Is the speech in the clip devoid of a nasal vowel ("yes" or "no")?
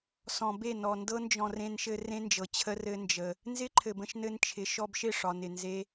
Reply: no